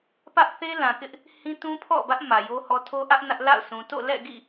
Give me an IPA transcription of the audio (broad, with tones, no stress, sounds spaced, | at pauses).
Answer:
p ä˦ ʔ θ e˦ l ã˨ k ɪ˦ ʔ | h ĩ˦ t ũ˦ pʰ ɔ̰˦˨ b ä˦ ʔ m ä˨ j o˦ h ɔ˦ tʰ o˦ ʔ ä˦ ʔ n ä˦ ʔ l a̰˦˨ ʊ̯ s ũ˨ t o̰˦˨ l ɛ̰˦˨ ɡ ḭ˦˨